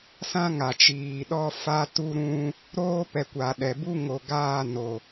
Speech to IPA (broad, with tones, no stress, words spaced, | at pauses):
sã˦ŋa˨t͡ʃiː˨ɗɔ˦ fa˦tu˦ɾũ˦ | ɾoː˦pɛ˨kʷa˨ ɗɛ˨bu˦ŋo˨ ɡaː˦˨no˨